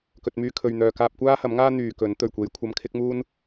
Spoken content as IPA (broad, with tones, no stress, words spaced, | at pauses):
kɵ˨t̚myː˧kʰɵ˨ɥn̪œː˨ kaː˧p̚kʷaː˥hɐ˨˥mŋaː˥ n̪yː˨kɵ˨˥n t̪ɵ˨˩ɥkʷe˨˧j kʷʰɐ˧mkʰɪ˥k̚muː˥n